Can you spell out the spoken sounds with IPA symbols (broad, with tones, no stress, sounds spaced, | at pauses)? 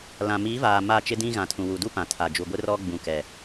l ã˨ m iː˨˦ v aː˨ m aː˦˨ t͡ʃ ɪ˦ d ĩ˦ ɣ ã˨ tʰ ũ˨ w u˨ d u˦ p ã˨ tʰ a˨ d͡ʒ u˨ ɡʷ ɪ˦ r ɔ˦ ɡ͡b ũ˨ k ɛ˨